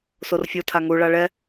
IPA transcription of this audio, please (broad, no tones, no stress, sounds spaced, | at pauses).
s o r fʲ o tʰ a ŋ u ɭ a ɭ ɛ